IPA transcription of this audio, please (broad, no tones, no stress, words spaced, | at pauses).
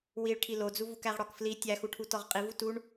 wiɭʈʰi lod͡zuvuk æʁɽɒkfli tʲæxuʈʰu tɒʁqʼivu tuɳ